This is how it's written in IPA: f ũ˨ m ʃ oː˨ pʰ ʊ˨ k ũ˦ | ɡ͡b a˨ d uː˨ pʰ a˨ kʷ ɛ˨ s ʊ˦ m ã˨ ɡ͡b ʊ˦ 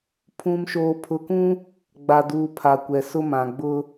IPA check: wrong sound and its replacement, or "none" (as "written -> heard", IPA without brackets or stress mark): f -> pʰ